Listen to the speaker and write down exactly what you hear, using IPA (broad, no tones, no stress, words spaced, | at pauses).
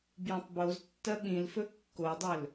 bjɐ̃tˤboztːɐ ɓĩlfɵ kːodˤɵl